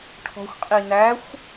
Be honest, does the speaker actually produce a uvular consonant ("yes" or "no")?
yes